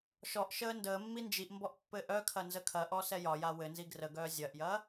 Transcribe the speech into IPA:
ʃ ɔ ʔ ʃ əː n d əː mː i n d͡ʒ i ʔ m b ɔ ʔ pː ɘ ʔ œ kʰ ɐ n z ə kʰ ɐ ʔ ɔ s ɛ j ɒ j a w ɘ n z i ɡ r ə ɡ œː zʲ ɐ ʔ j ɐ

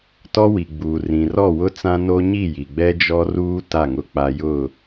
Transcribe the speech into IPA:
t ɔ˦ w i˨ ɡ͡b uː˨ r ĩ˨ r ɔ˦˨ w ʊ˦ t͡s ã˦ n o˦ ɲ i˦˨ j i˨ ɡ͡b ɛ˦ d͡ʒ ɔ˦ r uː˦ t a˦˨ ŋ ʊ˦ k͡p a˦ j ʊ˦˨

